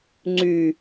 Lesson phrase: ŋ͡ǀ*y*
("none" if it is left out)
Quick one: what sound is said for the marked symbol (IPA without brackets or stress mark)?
y